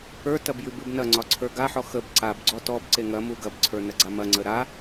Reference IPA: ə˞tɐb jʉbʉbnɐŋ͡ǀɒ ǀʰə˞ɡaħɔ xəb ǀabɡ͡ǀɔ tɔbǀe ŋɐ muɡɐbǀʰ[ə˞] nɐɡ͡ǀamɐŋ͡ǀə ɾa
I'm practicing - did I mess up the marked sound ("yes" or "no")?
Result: no